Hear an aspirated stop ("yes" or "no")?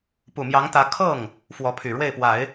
yes